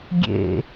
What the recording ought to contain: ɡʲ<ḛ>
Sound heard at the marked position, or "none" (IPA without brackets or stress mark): ḛ